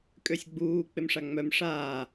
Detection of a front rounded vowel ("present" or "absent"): present